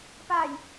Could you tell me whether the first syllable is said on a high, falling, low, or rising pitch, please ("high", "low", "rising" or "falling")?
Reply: low